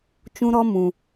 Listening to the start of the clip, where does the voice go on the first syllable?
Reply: high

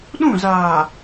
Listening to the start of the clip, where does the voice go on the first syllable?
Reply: falling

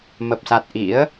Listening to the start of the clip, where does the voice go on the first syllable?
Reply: low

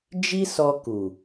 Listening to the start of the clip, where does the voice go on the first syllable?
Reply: high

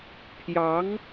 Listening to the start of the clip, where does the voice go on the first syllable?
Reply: rising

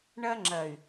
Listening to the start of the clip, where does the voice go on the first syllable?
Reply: high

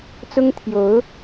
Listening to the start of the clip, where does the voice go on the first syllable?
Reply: high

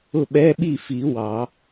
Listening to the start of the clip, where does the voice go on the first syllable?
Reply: falling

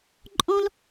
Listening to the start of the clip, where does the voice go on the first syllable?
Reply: high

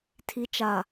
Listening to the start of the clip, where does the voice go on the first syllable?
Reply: low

